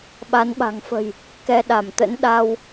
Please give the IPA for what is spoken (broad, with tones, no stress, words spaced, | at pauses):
ɓa˨˦nɓa̤˨˩ŋfə̤˨˩j | kɛ˧ ɗa˧˩mt̪ə̰˧˥n ɗa˧w